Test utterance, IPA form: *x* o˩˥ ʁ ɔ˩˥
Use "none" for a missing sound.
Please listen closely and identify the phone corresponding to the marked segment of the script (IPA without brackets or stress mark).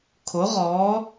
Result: kʰ